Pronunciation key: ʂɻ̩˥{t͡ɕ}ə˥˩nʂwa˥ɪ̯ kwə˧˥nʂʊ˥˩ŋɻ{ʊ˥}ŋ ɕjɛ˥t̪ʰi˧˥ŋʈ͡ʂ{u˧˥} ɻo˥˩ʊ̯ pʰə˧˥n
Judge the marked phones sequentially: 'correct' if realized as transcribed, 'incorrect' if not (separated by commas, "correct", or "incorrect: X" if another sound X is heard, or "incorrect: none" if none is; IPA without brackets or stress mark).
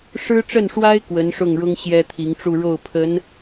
incorrect: ʈ͡ʂ, correct, incorrect: u˥˧